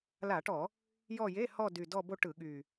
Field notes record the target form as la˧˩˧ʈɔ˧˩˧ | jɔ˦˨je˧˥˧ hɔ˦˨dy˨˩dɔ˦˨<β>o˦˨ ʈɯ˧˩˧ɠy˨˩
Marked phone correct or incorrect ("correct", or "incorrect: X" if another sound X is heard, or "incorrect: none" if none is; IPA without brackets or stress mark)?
incorrect: b